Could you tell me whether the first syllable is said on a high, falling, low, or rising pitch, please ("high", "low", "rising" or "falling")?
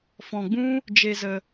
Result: low